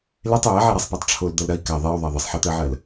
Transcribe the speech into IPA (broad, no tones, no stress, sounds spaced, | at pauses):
l e tˤ j æ ʕ e ɾ a sˤ p a tˤ ʈ͡ʂʰ o l d̪ ɐ l ɾ ɐ i̯ k a ðˤ e y̯ ðˤ æ ðˤ ə sˤ ħ ɛ t̪ ɜ ʕ ɜ l